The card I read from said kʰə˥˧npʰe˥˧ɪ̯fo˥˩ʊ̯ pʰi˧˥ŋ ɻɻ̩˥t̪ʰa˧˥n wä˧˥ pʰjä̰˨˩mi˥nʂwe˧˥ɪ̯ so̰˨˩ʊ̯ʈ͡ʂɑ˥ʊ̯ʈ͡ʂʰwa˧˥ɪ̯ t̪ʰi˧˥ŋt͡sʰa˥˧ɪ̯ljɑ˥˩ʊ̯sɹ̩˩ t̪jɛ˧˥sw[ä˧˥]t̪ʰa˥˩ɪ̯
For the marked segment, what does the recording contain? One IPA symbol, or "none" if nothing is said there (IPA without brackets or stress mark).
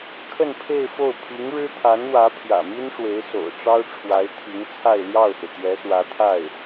ä˧˥